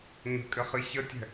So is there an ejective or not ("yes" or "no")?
yes